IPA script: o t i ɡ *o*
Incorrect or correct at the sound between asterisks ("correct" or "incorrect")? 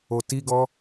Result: incorrect